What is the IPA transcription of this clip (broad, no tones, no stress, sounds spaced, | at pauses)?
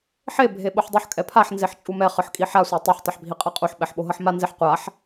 ħ e bʱ e ɓ o ħ dˤ u ħ kʼ ɛ pʰ a ħ n z e ħ t͡ʃʼ u m ɛ χ ɯ ħ kʼ i ħ a sʷ a tˤ u ħ tˤ ɛ ħ bʱ i qʼ a qʼ u ħ ɓ ɛ ħ ɓ o ɦ ʌ ħ m a n z e ħ qʷ a ħ